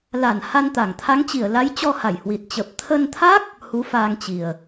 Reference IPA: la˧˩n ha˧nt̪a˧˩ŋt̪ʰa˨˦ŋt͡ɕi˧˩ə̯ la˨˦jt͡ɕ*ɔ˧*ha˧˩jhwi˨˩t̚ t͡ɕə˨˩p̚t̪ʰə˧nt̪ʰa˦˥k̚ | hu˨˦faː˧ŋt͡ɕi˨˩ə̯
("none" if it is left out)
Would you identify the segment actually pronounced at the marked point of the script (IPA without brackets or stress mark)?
ɔ˧